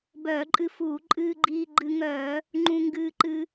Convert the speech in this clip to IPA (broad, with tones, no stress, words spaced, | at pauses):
bœː˧˩˧ǃʼɨ˧fuː˧˩˧ ǃʼɨː˧ɡ͡ǃiː˧ ɡ͡ǃɨ˧ ŋœː˧˩˧ | ŋ͡ǃũ˧ ŋɡɨː˧ǃɨ˧